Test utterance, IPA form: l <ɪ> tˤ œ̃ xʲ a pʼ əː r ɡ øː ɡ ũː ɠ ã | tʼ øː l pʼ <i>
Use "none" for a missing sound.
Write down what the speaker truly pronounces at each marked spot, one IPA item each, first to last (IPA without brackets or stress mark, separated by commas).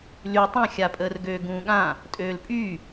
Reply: y, y